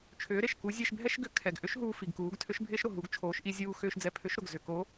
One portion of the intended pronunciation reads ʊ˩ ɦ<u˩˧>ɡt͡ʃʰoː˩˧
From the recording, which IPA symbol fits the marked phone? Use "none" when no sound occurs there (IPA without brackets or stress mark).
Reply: u˩˧